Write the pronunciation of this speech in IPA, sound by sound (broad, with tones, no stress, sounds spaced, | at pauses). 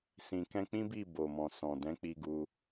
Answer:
s ĩ˨ k ɛ̃˧ k͡p ĩ˦ b i˦˨ b o˨ m ɔ̃˨ s ɔ̃˨ d ɛ̃˨˦ k͡p i˧ ɡ u˧